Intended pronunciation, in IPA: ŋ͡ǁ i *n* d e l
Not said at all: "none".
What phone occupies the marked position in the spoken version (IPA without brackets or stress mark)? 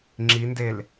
n